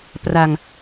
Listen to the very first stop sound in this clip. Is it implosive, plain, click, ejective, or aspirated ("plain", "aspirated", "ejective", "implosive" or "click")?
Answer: plain